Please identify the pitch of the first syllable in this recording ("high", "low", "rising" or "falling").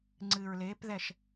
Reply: low